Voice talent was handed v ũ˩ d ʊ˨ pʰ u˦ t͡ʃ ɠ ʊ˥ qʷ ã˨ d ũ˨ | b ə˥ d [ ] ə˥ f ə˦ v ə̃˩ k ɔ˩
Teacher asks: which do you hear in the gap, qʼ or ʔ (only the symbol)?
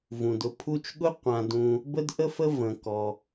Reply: ʔ